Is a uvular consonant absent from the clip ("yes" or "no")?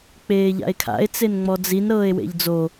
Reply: yes